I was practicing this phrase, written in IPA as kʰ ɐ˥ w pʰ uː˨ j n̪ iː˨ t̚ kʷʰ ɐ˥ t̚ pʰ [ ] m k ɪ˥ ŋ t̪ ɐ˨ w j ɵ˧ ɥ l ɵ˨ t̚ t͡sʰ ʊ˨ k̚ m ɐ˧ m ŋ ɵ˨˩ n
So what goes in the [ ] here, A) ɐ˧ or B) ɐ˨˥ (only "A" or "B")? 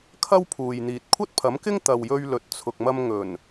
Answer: B